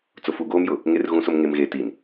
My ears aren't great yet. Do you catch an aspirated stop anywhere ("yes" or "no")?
no